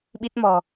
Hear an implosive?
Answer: yes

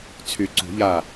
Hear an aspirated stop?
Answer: yes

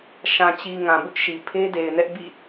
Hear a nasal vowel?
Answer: yes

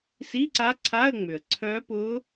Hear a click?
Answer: yes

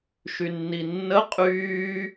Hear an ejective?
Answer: yes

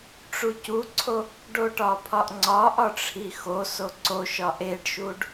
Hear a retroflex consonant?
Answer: yes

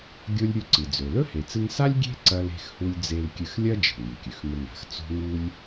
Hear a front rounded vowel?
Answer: no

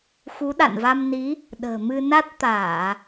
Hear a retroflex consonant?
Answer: no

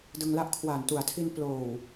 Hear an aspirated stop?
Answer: yes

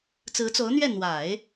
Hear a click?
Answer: no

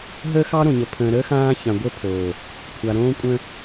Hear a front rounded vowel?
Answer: no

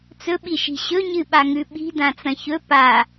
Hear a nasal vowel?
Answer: yes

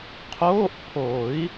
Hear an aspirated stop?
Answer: yes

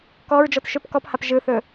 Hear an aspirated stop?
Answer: no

